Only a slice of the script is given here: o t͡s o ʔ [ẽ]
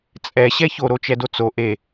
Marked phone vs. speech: incorrect: e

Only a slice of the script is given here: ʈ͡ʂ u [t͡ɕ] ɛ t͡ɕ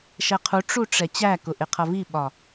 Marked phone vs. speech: incorrect: ʈ͡ʂ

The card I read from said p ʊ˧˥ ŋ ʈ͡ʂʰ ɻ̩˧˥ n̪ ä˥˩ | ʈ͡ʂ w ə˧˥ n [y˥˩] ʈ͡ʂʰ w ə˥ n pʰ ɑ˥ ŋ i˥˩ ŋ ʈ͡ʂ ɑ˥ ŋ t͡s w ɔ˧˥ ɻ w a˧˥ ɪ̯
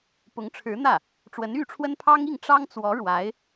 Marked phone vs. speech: correct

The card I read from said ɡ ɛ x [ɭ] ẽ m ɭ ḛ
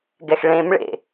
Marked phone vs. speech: correct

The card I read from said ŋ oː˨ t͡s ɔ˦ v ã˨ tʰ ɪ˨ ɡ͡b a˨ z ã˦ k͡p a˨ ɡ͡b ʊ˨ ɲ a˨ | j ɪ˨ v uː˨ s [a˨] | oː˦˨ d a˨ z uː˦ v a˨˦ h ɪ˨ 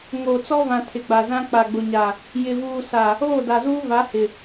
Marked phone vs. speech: correct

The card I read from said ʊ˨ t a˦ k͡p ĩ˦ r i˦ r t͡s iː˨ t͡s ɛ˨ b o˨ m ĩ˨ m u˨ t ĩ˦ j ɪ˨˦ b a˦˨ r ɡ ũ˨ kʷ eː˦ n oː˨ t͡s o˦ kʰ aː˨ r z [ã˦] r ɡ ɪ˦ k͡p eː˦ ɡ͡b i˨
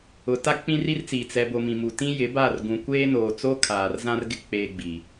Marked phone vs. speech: correct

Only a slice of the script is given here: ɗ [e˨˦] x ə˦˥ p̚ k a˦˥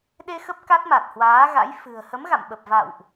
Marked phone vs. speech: incorrect: e˧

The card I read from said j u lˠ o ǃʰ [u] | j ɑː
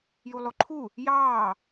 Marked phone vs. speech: correct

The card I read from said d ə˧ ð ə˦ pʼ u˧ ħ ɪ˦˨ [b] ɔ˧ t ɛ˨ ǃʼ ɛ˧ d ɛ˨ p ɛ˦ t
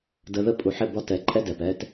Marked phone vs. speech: correct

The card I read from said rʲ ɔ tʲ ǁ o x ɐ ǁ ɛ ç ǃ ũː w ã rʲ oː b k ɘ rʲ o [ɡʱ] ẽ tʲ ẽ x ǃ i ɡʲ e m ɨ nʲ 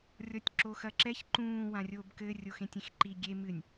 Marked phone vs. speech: incorrect: x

